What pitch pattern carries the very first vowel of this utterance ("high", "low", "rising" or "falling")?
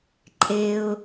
low